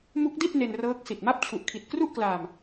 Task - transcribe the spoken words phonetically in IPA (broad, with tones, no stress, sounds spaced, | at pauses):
m u˦˥ k̚ d i˥˩ t̚ n e˧ n r ɤː˦˥ k̚ s i˨˩ t̚ m a˥˩ p̚ t͡ɕʰ u˨˩ ʔ kʰ i˨˩ t̚ k r u˥˩ ʔ k l aː˧ m